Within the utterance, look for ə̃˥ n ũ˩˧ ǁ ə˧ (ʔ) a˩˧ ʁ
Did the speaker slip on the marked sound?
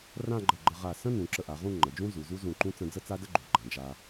no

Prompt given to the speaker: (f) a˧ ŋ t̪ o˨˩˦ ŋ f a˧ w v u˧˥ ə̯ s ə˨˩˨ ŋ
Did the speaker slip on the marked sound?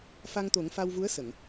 no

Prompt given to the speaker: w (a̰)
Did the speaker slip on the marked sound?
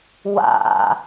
no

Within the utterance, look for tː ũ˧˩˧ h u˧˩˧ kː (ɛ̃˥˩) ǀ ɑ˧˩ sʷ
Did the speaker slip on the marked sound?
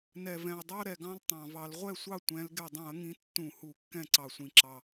no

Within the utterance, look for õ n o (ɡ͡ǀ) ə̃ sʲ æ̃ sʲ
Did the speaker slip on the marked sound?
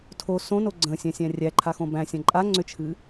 no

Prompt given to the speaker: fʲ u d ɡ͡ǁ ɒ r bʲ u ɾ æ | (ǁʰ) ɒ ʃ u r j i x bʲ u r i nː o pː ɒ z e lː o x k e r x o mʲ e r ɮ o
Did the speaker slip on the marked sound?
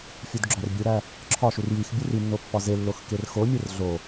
no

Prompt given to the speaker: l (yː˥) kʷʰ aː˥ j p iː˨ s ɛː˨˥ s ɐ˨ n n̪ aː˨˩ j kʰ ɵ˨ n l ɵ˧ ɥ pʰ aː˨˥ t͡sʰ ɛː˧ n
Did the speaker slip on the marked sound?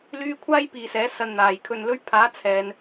yes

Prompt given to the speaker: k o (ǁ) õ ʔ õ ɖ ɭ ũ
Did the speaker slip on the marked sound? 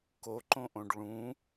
yes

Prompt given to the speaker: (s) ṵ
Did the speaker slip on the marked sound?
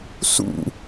no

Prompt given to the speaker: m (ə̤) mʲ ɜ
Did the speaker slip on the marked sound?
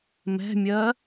yes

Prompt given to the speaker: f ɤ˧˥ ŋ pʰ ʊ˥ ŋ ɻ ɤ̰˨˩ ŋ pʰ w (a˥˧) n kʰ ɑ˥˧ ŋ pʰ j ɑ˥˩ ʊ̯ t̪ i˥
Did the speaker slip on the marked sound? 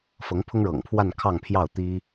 no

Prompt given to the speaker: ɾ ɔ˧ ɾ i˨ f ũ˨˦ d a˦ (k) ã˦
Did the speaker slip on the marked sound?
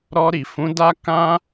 no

